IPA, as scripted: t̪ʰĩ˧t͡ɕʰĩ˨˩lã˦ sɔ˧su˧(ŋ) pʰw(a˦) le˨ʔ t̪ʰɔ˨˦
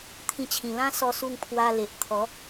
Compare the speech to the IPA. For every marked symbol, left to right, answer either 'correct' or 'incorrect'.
correct, incorrect: a˧

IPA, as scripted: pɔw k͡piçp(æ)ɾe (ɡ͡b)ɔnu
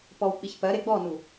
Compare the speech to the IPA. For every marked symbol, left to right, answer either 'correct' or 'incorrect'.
incorrect: ɜ, correct

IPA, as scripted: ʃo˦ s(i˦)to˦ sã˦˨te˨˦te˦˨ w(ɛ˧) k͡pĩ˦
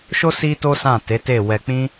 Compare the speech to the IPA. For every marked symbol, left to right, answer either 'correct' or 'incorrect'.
correct, correct

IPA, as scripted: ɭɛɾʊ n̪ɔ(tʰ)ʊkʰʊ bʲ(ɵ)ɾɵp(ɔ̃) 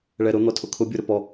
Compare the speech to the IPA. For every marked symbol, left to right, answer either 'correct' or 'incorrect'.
correct, incorrect: o, incorrect: ɔ

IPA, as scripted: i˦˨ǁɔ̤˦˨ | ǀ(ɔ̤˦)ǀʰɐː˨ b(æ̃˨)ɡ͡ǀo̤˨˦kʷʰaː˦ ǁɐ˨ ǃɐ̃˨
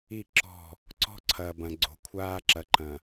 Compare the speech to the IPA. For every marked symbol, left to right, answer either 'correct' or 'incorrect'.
correct, incorrect: ɐ̃˨

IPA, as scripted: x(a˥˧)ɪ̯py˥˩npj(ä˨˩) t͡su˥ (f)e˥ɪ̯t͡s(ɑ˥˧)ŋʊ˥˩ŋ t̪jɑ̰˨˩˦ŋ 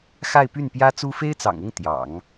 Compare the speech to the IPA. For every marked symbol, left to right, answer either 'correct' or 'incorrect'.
correct, incorrect: ä˥, correct, incorrect: ɑ̰˨˩

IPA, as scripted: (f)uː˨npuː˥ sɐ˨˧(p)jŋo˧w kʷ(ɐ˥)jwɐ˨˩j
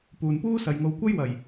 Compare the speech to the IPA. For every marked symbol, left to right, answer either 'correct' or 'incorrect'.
incorrect: p, incorrect: none, correct

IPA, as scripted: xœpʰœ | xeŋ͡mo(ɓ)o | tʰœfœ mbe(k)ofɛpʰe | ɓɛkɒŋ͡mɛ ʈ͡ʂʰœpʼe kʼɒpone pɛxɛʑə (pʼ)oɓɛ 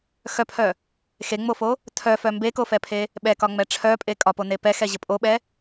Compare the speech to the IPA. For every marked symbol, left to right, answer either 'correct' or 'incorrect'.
incorrect: f, correct, correct

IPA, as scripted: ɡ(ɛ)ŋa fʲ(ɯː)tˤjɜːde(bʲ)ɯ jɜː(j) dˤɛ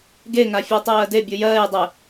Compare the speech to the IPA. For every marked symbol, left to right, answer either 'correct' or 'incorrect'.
incorrect: e, correct, correct, correct

